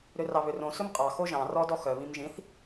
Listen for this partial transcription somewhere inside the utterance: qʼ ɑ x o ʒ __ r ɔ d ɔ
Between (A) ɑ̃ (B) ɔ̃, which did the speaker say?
A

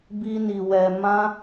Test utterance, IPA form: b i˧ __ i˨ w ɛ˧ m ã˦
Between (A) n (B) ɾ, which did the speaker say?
A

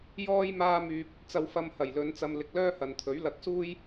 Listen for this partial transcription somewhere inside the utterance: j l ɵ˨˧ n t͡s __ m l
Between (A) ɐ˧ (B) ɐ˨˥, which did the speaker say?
A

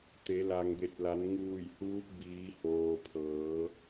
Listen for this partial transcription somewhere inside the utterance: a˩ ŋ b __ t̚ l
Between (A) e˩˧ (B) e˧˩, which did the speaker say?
B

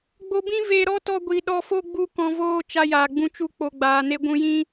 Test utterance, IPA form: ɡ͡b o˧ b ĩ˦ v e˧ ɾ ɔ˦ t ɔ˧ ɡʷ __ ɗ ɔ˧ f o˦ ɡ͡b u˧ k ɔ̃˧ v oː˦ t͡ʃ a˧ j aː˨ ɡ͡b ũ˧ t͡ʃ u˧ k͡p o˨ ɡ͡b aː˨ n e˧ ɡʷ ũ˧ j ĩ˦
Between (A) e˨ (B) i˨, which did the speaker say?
B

